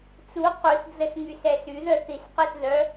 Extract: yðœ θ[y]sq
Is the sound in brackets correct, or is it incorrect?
incorrect